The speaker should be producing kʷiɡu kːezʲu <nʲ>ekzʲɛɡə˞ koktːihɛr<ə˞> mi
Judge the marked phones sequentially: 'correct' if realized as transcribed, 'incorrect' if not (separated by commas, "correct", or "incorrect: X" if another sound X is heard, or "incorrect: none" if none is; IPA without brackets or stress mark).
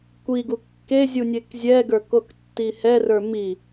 correct, correct